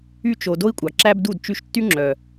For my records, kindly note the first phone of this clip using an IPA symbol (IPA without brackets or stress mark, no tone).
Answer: y